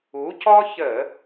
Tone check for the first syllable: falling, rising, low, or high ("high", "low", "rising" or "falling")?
rising